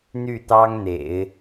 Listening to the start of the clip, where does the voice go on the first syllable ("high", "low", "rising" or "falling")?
falling